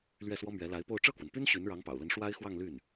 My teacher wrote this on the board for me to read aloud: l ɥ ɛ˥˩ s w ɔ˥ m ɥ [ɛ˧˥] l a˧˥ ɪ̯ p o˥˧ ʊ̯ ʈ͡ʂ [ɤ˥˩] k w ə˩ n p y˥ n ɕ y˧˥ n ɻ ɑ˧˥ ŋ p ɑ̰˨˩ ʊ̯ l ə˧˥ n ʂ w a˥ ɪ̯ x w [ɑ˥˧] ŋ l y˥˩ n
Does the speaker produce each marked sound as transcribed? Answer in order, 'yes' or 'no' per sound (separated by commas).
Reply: yes, yes, yes